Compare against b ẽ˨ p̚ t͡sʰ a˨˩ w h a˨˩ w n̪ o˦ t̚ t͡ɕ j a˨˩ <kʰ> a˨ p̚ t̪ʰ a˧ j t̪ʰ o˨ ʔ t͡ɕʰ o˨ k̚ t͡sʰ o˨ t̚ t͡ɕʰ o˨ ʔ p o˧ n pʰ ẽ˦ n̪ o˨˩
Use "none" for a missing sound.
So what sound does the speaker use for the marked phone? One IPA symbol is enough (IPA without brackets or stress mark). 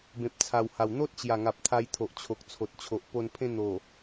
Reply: ŋ